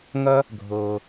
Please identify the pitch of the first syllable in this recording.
high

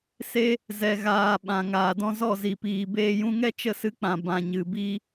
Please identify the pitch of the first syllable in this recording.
high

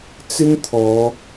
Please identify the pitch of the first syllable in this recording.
high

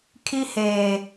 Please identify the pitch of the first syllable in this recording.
high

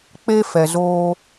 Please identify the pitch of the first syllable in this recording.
high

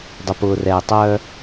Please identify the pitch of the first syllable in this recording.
low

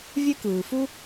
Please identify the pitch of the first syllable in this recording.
high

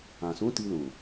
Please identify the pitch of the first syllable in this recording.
low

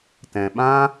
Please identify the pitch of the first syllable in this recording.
low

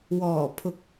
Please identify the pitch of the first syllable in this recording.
low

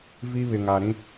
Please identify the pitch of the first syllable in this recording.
high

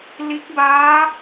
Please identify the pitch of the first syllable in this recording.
rising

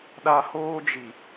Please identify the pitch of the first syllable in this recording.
high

